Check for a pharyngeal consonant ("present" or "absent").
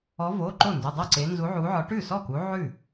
present